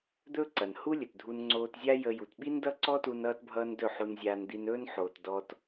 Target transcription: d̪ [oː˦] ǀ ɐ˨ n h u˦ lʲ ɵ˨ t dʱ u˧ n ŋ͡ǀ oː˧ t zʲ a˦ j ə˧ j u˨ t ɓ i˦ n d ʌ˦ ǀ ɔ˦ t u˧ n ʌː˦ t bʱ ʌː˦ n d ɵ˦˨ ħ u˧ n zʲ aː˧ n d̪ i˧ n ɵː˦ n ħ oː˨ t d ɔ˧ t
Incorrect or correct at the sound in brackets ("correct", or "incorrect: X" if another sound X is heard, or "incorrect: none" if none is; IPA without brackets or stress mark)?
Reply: incorrect: ɵː˦